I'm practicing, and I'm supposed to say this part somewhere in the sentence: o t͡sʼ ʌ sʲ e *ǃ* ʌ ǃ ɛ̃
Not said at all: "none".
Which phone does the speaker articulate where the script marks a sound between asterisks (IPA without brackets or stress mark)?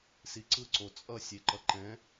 ǃ